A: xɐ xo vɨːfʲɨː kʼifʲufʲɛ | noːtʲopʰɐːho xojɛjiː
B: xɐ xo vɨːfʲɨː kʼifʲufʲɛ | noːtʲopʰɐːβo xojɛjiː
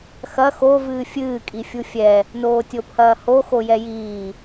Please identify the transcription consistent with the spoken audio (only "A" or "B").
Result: A